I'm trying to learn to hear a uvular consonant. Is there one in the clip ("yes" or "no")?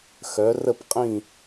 yes